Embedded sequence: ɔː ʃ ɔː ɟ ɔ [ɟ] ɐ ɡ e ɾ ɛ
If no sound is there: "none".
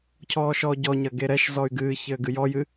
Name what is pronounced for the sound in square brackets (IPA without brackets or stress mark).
ɲ